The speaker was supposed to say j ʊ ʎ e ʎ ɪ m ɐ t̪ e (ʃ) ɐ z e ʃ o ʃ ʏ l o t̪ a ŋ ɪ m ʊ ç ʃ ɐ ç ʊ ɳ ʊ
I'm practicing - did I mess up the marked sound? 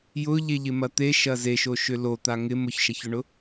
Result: no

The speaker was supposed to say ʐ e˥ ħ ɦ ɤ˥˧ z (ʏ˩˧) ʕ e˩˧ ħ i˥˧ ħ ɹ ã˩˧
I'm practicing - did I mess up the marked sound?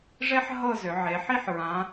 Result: no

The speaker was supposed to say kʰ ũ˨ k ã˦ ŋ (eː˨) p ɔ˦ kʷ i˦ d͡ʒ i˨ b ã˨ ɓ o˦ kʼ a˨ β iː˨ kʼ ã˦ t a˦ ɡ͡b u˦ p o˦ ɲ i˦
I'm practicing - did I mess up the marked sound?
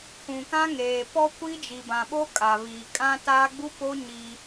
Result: no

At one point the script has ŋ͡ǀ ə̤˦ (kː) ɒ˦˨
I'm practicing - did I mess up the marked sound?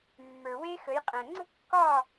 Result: no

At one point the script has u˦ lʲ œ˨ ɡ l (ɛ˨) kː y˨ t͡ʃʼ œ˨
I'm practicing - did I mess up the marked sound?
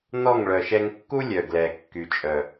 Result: no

